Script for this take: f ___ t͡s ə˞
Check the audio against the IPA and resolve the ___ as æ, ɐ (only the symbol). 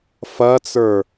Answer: ɐ